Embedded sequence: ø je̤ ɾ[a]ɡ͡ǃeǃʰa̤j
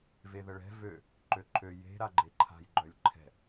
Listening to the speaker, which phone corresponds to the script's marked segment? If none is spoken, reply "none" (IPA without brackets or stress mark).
a